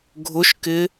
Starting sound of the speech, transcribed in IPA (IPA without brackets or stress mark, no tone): ɡʱ